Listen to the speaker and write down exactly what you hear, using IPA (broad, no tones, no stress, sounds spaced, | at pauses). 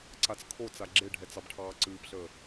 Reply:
ǀ a t͡s kʰ o t͡s a ɡ͡ǁ e ɖʱ ɛ t͡s ɑ b ʈʰ ɑː ǀ ɨː p ɬ əː